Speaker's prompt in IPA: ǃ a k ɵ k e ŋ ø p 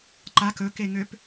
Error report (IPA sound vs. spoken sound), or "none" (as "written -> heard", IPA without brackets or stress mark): none